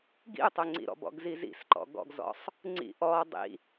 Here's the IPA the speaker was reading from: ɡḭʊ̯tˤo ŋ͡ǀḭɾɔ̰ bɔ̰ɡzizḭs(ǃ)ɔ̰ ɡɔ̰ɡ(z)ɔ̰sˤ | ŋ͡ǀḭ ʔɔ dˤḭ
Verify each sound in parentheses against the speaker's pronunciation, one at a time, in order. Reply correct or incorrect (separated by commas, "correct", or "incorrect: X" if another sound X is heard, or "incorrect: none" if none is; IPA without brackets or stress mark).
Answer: correct, correct